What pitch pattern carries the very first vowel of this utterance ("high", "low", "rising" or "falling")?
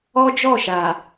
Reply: high